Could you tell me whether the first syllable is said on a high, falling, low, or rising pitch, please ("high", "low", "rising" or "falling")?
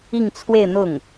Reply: falling